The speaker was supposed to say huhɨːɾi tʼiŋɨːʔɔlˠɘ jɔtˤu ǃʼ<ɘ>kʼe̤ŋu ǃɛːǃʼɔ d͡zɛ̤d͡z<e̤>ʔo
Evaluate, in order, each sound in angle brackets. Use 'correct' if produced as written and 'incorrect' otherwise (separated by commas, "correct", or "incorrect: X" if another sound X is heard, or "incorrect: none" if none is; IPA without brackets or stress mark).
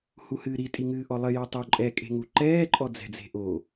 incorrect: ɛ, correct